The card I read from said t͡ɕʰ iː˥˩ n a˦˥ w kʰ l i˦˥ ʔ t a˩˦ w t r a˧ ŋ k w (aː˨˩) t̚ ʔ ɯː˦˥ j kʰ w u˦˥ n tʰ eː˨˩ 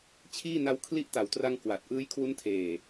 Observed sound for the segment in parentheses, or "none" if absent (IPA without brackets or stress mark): a˨˩